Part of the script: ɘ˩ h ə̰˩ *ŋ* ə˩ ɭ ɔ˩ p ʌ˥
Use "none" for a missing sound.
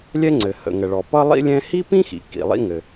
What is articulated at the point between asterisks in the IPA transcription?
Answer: ŋ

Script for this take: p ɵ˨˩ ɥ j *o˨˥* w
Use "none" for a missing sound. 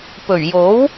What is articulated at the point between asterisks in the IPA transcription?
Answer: o˨˥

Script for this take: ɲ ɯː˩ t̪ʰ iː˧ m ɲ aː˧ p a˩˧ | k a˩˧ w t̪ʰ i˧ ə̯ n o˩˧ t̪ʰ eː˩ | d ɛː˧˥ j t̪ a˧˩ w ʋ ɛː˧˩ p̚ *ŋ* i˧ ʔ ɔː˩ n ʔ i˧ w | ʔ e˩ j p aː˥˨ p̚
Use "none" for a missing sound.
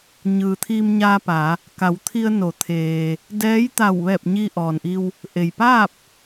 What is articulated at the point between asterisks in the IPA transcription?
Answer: ɲ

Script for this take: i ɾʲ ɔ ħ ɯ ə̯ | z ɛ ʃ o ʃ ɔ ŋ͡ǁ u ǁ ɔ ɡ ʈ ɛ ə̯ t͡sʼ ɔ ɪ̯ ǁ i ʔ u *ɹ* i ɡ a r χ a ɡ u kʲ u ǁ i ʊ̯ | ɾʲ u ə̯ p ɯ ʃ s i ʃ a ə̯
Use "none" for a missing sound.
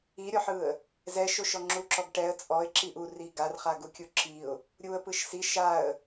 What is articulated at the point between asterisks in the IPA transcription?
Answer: r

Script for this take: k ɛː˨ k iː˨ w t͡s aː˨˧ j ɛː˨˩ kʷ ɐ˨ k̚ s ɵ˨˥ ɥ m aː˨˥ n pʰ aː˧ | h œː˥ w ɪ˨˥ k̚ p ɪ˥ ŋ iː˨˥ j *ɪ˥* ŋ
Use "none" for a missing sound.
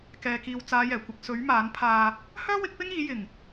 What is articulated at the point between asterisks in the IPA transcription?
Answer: ɪ˨˩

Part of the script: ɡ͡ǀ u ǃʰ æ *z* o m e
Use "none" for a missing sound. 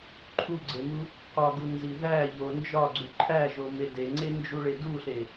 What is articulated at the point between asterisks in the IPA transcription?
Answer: ʒ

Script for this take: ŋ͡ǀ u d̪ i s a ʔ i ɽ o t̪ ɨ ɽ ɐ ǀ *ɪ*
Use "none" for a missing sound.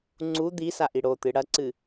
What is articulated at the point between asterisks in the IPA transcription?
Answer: ɨ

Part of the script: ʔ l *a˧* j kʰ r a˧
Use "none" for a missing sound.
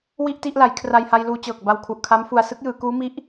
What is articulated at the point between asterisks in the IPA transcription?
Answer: a˩˦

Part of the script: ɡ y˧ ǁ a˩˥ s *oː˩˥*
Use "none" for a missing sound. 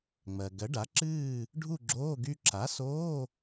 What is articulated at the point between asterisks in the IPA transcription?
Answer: oː˧˥˧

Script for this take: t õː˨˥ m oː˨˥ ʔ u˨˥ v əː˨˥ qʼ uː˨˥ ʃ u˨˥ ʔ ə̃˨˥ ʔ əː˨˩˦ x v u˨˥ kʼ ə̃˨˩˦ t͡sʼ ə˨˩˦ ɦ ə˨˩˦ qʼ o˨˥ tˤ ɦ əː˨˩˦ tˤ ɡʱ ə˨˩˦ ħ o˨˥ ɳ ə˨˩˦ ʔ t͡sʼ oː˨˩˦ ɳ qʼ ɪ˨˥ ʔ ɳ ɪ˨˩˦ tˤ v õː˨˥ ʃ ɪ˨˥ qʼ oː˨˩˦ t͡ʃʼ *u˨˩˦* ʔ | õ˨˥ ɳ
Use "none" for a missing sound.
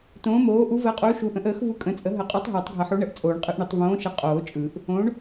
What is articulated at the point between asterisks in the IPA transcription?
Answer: ɯ˨˩˦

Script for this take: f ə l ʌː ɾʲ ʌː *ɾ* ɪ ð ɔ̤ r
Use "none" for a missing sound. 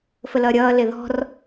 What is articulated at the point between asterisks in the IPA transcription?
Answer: l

